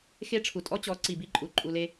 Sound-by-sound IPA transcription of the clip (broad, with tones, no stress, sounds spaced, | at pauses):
x e˦ ʈ͡ʂʰ u˨ tʼ ɔ˦ t͡ɕ ɔ˨˦ ǀ i˨ b i˦ ǃʼ u˨ ǃʼ u˧ l e˦